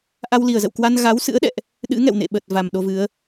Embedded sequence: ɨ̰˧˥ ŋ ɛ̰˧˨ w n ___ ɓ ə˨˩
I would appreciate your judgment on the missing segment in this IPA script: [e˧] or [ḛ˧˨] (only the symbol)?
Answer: ḛ˧˨